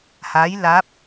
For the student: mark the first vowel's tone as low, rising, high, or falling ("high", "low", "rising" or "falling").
rising